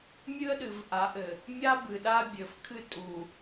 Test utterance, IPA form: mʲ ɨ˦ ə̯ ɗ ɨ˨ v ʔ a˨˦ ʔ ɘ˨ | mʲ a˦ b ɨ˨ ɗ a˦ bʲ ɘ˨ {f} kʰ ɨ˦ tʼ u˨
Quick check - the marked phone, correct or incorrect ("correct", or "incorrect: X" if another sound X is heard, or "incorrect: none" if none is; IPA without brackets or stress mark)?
correct